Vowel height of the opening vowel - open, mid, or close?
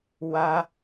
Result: open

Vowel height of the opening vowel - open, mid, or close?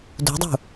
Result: close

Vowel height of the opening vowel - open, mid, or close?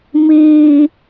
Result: close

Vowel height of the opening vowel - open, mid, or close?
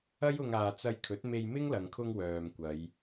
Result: open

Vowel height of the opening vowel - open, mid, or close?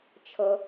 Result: mid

